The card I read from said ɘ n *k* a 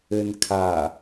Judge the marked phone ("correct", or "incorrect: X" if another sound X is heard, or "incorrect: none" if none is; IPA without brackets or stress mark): incorrect: kʰ